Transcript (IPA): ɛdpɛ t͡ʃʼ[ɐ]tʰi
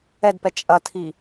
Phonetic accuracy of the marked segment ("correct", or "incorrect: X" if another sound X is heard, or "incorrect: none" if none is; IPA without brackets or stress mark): correct